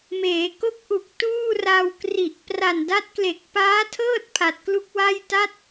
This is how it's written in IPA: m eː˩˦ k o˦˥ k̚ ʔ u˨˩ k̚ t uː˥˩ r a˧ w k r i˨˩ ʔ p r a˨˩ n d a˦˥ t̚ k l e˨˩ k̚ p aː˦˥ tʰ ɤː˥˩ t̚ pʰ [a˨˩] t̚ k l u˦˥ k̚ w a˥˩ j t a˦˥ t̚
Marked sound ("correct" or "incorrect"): correct